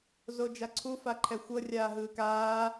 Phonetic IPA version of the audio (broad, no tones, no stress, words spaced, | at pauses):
zod͡ʒaǀʰu faǃʰɛxʷɤ rʲaːɦɯːkaː